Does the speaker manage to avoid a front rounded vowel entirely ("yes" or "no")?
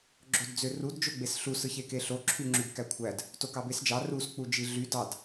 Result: no